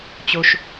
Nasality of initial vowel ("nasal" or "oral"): oral